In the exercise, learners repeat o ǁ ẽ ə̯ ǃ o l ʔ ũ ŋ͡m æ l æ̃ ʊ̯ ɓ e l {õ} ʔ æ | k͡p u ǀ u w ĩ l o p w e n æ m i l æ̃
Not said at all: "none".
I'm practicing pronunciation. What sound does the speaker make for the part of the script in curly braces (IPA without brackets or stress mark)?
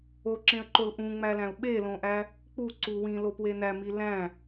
õ